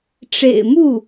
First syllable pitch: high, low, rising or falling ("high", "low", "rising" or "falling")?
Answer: low